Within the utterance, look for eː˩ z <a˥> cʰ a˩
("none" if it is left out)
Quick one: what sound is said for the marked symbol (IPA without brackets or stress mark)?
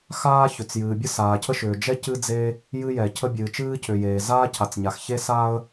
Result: aː˥